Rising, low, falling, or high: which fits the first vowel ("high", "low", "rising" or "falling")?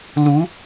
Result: rising